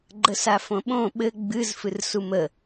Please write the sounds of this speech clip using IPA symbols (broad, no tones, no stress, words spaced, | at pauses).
ɡ͡ǃəsafõɓõ ɓɘ ɡ͡bɨzfɨr sumə